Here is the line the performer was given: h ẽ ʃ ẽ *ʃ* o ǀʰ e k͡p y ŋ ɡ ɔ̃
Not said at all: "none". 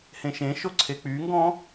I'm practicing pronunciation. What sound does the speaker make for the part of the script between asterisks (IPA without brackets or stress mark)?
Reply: ʃ